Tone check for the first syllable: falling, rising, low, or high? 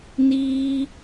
high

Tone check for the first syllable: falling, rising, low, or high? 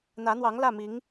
rising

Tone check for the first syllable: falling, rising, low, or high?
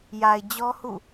low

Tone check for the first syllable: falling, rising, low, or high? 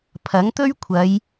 rising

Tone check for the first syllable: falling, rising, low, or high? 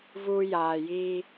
high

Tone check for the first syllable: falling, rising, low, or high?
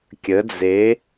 rising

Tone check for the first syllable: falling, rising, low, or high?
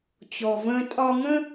low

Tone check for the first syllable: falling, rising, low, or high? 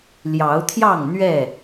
rising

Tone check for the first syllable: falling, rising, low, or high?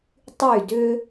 falling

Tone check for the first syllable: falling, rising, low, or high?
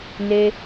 high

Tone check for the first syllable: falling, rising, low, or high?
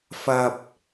high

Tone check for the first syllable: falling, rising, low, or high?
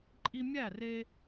high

